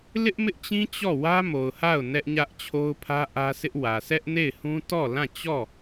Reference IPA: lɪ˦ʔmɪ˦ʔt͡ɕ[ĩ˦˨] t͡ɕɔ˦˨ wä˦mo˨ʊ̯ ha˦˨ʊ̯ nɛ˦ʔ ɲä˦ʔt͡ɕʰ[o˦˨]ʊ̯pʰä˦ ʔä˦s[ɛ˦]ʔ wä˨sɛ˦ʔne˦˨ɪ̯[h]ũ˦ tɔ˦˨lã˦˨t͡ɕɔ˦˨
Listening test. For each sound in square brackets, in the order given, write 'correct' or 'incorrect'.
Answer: incorrect, incorrect, incorrect, correct

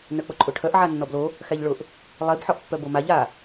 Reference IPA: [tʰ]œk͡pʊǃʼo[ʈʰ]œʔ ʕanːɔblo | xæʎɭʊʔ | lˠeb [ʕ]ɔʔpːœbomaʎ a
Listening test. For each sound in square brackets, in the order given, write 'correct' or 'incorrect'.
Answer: incorrect, correct, incorrect

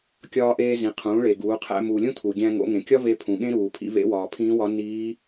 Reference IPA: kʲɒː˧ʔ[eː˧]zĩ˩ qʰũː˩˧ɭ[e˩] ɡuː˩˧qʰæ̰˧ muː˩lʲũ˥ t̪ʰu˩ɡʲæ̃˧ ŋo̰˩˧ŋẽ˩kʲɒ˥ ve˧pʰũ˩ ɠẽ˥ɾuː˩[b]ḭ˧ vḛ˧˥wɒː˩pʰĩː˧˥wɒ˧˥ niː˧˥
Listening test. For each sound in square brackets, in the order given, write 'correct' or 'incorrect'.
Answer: correct, correct, incorrect

